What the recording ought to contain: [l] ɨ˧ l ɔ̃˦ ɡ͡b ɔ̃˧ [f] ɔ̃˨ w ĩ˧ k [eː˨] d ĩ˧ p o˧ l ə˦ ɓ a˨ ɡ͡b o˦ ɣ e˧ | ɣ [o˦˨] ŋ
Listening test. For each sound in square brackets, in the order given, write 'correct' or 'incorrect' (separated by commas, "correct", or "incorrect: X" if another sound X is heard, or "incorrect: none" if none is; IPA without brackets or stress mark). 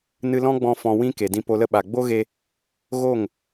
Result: incorrect: n, correct, incorrect: e˨, correct